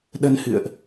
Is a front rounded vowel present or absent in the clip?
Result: absent